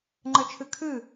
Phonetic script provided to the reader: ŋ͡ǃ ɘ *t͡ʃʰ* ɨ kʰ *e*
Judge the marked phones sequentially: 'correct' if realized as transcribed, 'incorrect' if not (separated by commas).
correct, incorrect